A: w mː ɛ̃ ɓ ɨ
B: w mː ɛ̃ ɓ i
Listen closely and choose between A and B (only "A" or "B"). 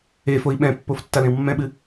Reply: A